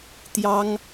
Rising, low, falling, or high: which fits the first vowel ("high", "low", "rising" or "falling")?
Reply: high